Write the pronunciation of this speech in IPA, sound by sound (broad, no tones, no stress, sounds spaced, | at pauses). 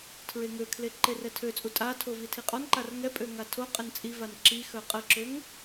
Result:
tʰ ɹ e ŋ ø kʰ l e ǃ e r ɛ tʰ ø t͡sʼ u tʼ a tʰ o v i tʰ i qʼ ɔ n ǃ a r ŋ ɛ pʼ ø ŋ a tʰ o qʼ ə n t͡sʼ i v a n ǁ i x œ qʼ ə ǁ ø ŋ